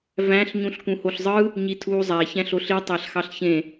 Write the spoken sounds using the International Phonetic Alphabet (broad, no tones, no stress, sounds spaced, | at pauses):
v æ̃ ɬ ɲ ũ ɬ k ũ h o ɬ zˤ ɯ | ɲ i tʰ uː zˤ æ ç æ̃ ɬ o ɬ i tˤ æ ɬ x ɑ ɬ ç ẽ